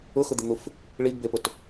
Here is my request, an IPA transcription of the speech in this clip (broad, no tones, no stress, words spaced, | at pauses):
ʊxʊd̪ɪn̪uf | ɭiɡbepʊt